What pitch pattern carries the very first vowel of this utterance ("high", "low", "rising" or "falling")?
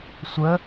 rising